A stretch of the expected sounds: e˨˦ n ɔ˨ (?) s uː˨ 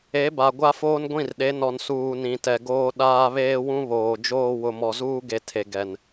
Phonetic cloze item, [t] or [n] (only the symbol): n